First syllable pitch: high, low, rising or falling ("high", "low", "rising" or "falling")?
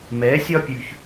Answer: rising